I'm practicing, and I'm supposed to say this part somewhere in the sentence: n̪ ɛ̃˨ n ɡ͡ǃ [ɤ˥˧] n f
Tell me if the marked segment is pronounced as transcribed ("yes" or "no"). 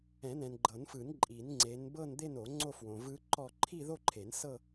no